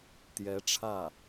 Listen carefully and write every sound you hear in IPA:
t̪jɛ˧˥ʈ͡ʂʰä˥˩

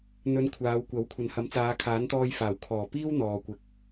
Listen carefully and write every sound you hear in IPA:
n̪ɵ˨˧n kʷʰaː˨˧wkʷɐ˨˥w kʷʰɐ˨nhɐ˨˧m t͡saː˨˧kʰaː˨˥nt̪ɔː˧j faː˨˩wkʰɔː˨˩ piː˥w n̪ɔː˨kʷɪ˨k̚

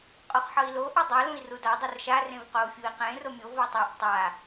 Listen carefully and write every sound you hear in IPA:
qʼoχħʌi̯lo ʔʌdˤʌ lũi̯ruda dˤʌrʃa rẽvqou̯fʲui̯qẽ romʲo vʌtˤiʔ tˤa

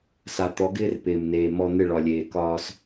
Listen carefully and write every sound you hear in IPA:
sa˨t̪ɔ˨˦ɡɪː˦r pɪː˨mneː˨ mɔ˦ n̪ɪ˦˨ɭɒ˨lʲeː˨ kɒː˦s

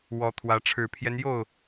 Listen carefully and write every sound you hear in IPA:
wɔ˨˦t̪ʰwä˨˦ ʈ͡ʂʰɻ̩˨˩pʰjɛ˦njo˥˨ʊ̯

